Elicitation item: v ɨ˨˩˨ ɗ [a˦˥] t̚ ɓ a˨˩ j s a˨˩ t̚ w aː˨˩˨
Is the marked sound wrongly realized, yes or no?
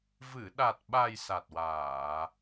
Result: yes